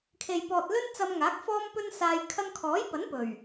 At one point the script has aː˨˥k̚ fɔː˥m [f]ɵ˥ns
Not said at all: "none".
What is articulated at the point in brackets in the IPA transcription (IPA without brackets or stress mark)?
p